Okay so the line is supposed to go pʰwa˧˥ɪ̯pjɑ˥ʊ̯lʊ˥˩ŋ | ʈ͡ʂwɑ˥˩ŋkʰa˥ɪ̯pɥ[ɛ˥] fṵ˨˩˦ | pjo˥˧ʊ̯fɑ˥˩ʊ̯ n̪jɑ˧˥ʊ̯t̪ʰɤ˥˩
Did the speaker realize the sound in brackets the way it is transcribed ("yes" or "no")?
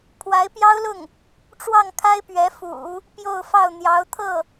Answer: no